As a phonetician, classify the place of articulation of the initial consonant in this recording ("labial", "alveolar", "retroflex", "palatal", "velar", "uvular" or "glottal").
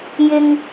palatal